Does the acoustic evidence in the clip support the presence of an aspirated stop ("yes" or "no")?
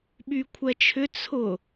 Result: yes